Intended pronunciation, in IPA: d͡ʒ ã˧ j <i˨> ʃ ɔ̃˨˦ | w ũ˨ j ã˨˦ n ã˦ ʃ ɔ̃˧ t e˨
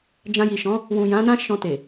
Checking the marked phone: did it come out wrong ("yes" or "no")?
no